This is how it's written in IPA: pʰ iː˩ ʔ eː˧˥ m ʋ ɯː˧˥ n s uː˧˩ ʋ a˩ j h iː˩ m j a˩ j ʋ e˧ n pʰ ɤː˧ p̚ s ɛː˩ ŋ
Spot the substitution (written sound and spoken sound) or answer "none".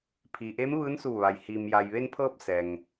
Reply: none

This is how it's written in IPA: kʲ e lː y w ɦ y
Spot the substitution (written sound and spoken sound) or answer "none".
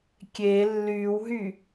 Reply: none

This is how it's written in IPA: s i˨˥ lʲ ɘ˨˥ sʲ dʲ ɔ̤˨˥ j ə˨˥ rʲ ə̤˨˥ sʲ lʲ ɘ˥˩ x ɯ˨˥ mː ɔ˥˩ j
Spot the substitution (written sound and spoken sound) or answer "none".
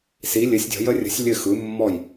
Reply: none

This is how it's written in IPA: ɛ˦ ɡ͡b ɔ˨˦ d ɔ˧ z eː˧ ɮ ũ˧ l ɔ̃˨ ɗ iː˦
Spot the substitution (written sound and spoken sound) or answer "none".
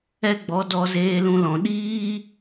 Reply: ɮ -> l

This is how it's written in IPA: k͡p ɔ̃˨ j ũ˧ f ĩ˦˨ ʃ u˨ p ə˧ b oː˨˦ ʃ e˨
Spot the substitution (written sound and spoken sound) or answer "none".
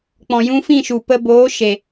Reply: none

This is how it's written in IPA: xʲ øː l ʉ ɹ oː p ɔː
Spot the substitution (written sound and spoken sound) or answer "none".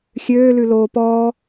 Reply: ɹ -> l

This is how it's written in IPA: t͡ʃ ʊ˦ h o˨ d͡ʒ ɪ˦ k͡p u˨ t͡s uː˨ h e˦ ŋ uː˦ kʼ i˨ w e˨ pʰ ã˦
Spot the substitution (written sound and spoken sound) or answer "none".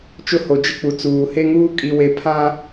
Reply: none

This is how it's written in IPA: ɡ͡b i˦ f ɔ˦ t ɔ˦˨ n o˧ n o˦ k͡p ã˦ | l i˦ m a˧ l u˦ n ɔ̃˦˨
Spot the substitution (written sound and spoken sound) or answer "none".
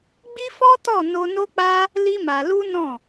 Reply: ã˦ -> a˦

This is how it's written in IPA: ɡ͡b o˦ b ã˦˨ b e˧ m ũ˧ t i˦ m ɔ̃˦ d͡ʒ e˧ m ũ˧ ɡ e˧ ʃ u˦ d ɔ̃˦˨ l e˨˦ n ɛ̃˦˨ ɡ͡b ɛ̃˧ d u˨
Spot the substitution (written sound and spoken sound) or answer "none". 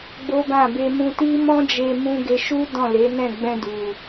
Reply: none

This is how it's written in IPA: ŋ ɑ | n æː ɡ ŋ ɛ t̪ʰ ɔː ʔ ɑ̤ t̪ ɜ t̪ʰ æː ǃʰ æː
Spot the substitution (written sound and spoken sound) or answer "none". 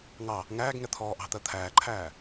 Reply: n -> ŋ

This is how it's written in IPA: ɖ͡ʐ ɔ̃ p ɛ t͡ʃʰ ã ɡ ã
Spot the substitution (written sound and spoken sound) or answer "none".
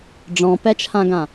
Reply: none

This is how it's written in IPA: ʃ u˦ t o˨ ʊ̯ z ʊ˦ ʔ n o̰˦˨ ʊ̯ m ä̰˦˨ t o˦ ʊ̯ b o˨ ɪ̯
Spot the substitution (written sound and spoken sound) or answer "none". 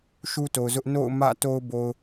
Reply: ɪ̯ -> ʊ̯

